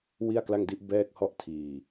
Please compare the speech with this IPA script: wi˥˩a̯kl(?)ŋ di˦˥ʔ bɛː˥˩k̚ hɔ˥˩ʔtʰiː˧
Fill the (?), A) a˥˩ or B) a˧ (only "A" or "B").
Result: A